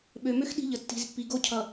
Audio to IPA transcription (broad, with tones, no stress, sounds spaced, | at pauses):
ɓ ø˨ m ø˦ x ɗ i̤˦ ʎ ə˨ tː i̤˨ z pː i˨ ɡ o˦ cʰ ʌ˨